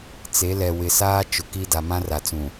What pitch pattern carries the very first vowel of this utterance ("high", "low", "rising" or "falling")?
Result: rising